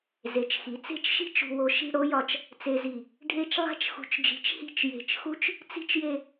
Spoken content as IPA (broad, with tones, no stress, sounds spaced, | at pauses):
z e˩˧ t͡ʃ x i˩˧ t͡s e̤˥˧ t͡ʃ ʃ i̤˥ t͡ʃ ṳ˧ w o˧ ʃ i̤˥˧ ɽ o˥ j ɒ˧ t͡ʃ | t͡s e˧ z i˧˩ | ɖʱ e˥˧ t͡ʃ lˠ æ̤˥ t͡ʃ x ṳ˧ t͡ʃ d͡ʒ i̤˧ t͡ʃ h i̤˥˧ t͡ʃ j e̤˧˩ t͡ʃ x u˥ t͡ʃ | t͡s i̤˥ t͡ʃ j e˥˧